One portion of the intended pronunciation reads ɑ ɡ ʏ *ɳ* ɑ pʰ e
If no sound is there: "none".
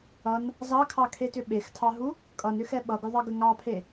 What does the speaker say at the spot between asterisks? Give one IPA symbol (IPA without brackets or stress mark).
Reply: ŋ